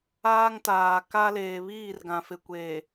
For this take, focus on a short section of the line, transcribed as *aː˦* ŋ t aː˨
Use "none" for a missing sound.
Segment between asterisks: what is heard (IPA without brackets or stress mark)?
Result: aː˦